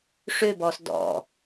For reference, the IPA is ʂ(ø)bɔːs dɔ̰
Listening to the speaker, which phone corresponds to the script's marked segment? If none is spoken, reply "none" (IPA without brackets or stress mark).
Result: ø